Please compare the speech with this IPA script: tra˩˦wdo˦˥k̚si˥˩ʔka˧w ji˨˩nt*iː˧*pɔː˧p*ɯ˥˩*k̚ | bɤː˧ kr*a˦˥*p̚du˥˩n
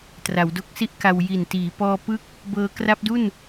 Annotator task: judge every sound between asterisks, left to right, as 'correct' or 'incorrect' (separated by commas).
incorrect, incorrect, correct